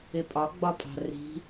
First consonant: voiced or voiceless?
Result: voiceless